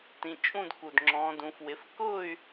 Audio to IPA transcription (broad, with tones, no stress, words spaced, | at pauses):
tĩ˧t͡ʃʼũ˥˧d ku˥˧d ŋ͡ǁɔ̃˦˥dũ˦˥fwɪ˦˥f kʊː˥˧y̯